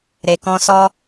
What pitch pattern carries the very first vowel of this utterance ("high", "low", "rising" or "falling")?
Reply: low